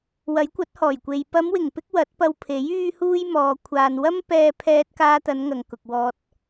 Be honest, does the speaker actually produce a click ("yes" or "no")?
no